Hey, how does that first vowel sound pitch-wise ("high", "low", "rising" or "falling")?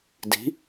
rising